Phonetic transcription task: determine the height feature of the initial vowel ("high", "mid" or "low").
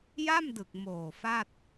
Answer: low